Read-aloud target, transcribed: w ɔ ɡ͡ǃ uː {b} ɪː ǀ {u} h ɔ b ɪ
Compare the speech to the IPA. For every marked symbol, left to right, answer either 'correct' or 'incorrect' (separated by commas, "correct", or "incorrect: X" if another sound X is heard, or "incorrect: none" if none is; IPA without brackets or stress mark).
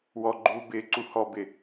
correct, correct